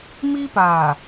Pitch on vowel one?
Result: high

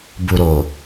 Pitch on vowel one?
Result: low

